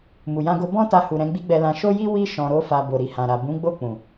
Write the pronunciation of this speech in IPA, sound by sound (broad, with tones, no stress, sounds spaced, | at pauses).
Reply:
m u˨ j ã˧ ɡ o˧ b ɔ̃˦ t a˧ h u˨ ɾ ɛ̃˨˦ ɡ͡b i˦ ɡ͡b ɛ˧ l ã˧ ʃ o˦ j i˦ w i˧ ʃ ɔ̃˨ ɾ o˧ f a˨ b o˨ ɾ i˨ h ã˨ ɾ a˨ b ũ˨˦ ɡ͡b o˦˨ k͡p ũ˨